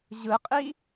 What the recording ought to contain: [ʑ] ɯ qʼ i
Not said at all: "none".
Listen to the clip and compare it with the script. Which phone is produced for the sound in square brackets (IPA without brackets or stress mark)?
ʑ